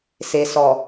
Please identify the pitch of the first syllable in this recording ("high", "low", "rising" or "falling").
low